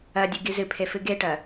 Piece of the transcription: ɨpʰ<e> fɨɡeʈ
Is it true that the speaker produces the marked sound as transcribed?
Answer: yes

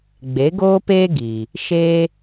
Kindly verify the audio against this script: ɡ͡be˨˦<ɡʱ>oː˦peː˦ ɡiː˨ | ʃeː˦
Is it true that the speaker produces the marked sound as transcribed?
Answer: no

